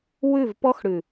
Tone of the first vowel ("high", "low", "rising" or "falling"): falling